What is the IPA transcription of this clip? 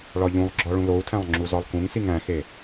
ɭɒʎũlˠɡ͡ǁɒ ɭũlou̯tʰæ̃lˠ ŋ͡ǁuzɒlˠkũŋsiŋ æ̃xe

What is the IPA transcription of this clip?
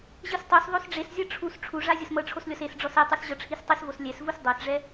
ʑɯstˤos ðˤosɖ͡ʐeszʲɤ ʈ͡ʂʰus ʈ͡ʂʰuʐa zʲɤsmɤʈ͡ʂʰoslʲɔs es ɖ͡ʐɔsɛtˤus ʑɤʈ͡ʂʰistˤisvos lʲɛsvus dˤɤsʐɛ

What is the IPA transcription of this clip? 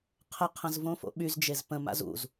qʰəqʰə̃z võfo̰ɓyzd͡ʒez pə̃ma̰z ṵz

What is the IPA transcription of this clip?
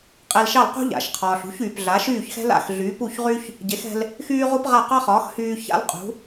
qʼe˧lʃɑ˥˩lqṳ˥ ʎa̰˩ʃqʰɒː˩ɬ ṳ˩˥çyː˩pɮa˩˥ʃyː˥˩ç xɛ̤˥la̰˥˩x ɮyː˩˥pu˥˩çʁy˥ç | ɟe˩˥xɛ̤˧l | xyː˥ʁu˥pʁa˥˩ qɑ˥χɒː˩˥xhyː˧ ça̰˥lqʼṳ˩˥

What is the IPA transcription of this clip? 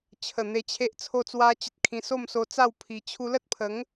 t͡ɕʰə˨˩ n̪e˧t͡ɕʰe˦ʔ t͡sʰo˥˧t͡swa˦t͡ɕə˦t̚kʰĩ˧ so˥˧mso˧t͡sa˥˧w pʰi˧ t͡ɕʰu˧lə˦t̚pʰə˨˦ŋ

